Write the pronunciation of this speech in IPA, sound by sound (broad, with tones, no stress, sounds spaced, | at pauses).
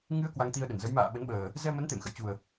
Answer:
ŋ ɨ˧ ə̯ k w a˧ ŋ t̪ i˧ ə̯ ɗ ə˧˩ n z ə˨˦ j m a̰ː˧˨ ɓ ə˨˦ n ɓ əː˨˩ | z ɛ˧ m ə˨˦ n t̪ ḛ˧˨ m x ə̰˧˨ j t͡ɕ u˨˩ ə̯